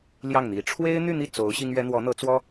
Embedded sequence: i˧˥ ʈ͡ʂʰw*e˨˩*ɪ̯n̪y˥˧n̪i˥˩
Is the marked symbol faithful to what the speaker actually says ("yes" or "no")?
no